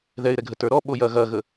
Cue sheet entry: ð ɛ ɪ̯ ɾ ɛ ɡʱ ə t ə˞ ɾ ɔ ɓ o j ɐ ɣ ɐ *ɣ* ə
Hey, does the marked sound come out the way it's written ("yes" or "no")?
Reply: yes